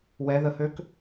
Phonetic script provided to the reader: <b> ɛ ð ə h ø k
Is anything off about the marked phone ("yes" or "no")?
yes